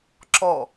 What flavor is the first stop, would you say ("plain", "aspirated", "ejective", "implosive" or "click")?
click